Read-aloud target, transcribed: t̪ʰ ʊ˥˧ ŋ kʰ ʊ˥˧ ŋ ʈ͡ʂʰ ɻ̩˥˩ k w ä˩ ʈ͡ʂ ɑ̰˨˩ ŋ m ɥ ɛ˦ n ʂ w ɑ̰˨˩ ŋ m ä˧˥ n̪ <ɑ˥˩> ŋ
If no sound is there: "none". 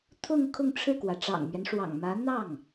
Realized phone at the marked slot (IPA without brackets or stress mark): ɑ˥˩